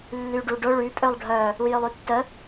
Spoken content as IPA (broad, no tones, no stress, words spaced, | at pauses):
lːyɖuɖʊ ɭy pʼølˠɖʱœ | ujølˠytːə